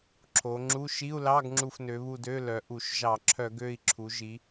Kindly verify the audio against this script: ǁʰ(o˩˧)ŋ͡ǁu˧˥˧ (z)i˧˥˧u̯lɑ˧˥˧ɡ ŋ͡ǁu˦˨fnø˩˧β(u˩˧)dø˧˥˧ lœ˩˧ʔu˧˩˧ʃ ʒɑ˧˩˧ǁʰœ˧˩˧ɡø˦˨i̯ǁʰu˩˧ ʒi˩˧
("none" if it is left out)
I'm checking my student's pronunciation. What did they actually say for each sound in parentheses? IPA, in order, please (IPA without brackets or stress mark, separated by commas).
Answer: o˩˧, ʃ, u˦˨